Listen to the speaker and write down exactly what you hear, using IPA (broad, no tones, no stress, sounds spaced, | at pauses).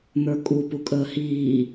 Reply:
n̪ ə˞ kʼ u p u kʼ əː h iː